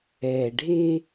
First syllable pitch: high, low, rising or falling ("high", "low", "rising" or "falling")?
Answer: low